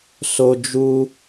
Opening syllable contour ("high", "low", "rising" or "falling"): high